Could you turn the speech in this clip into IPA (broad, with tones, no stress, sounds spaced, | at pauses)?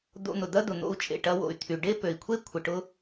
d̪ o̰˧ n̪ ʊ˩ d̪ ɐ˥ d̪ ʊ˩ n̪ o̰˧ u̯ t͡ʃʼ ḛ˩ ʈ ɐ˧ w o̰˩ y̯ t̪ʰ y˩ ɖ e˥ p ø˩ i̯ kʷʰ e˥ kʷʰ ɪ˩ ʈ ʊ˧